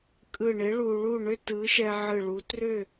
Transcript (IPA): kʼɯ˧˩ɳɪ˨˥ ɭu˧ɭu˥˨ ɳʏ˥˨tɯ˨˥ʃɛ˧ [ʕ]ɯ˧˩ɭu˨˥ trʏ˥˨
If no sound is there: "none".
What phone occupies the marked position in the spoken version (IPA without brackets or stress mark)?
ʕ